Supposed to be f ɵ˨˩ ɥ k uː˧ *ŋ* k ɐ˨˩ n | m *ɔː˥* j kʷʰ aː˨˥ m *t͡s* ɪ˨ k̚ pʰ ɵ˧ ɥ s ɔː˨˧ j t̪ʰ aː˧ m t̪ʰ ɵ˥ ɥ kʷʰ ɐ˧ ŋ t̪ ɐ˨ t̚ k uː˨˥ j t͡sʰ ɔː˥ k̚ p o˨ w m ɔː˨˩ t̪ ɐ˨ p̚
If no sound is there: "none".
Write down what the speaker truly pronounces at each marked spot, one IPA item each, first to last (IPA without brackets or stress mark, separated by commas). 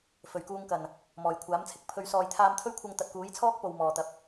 ŋ, ɔː˨˩, t͡sʰ